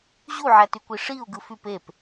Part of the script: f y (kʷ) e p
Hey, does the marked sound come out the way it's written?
no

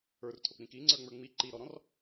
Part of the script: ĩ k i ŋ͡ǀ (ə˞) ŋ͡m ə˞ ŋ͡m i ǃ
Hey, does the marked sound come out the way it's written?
yes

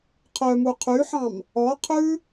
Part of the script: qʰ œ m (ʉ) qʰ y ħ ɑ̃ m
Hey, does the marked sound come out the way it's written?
no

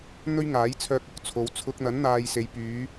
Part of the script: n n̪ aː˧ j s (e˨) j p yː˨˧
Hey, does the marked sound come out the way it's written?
no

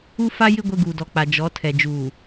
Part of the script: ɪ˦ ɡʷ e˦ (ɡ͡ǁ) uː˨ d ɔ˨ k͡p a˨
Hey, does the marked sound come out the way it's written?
no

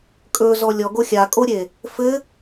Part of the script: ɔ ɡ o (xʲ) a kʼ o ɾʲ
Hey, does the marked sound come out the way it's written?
yes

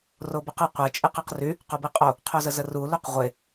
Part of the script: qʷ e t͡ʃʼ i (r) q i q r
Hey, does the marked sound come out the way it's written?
no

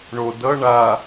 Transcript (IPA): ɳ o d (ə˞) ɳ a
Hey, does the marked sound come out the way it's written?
no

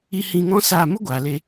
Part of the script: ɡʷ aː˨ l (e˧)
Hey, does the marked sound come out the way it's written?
yes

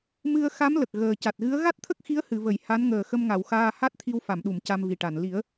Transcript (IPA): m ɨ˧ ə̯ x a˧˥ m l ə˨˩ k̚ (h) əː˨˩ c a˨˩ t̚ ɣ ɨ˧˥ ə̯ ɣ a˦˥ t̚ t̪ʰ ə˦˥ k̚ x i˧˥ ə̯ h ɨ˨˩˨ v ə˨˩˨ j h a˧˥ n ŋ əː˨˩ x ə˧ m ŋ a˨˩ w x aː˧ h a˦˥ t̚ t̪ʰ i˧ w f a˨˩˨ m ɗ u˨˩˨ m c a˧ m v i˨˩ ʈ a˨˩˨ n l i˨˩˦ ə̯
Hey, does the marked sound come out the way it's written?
no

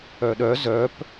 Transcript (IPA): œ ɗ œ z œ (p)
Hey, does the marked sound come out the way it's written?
yes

